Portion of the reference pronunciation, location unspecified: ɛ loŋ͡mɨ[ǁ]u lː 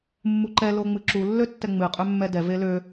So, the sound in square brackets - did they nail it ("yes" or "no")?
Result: yes